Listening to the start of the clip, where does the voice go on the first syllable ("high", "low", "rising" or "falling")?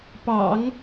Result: low